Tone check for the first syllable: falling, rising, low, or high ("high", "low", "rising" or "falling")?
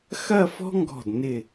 falling